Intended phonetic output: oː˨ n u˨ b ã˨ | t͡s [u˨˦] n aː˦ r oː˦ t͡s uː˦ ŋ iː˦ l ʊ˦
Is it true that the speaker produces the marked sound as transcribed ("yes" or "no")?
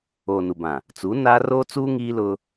yes